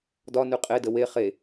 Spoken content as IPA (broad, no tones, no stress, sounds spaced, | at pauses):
d ɒ n ʉ qʼ e d ə w e χ e